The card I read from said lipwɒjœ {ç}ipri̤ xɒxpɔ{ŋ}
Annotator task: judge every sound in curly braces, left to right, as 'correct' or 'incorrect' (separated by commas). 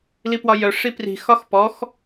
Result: incorrect, incorrect